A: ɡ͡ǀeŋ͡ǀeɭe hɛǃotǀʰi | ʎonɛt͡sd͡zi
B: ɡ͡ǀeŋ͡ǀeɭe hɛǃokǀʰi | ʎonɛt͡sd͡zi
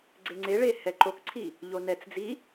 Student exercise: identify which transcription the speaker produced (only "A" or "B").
B